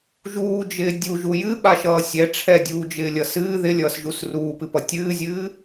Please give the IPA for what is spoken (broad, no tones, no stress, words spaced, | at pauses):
ʒuːd͡ʒɪː dʲuʒu jɨɓaʃʌː sʲɛ ʈ͡ʂʰɛdʲuːd͡ʒɪːlʲʌ sɨː ðɪlʲʌːsʒus ruːpɨpʌ tʲɨːzʲɨː